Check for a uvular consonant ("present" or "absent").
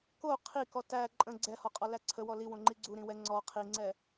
present